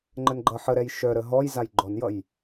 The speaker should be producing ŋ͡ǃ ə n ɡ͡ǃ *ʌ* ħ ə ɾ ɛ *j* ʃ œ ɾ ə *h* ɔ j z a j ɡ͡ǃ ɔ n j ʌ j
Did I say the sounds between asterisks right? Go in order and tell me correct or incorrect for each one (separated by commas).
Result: correct, correct, incorrect